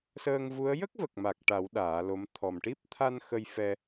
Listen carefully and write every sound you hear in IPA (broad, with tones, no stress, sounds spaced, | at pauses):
s əː˧ ŋ v u˧˥ ə̯ j ə˦˥ k̚ v ə˨˩ k̚ m a˨˩ k̚ ʈ a˨˩˦ w ɗ aː˨˩˦ l o˧˥ m t̪ʰ ɔ˨˩ m ʈ i˦˥ p̚ t̪ʰ a˧ n x ə˧ j f ɛ˧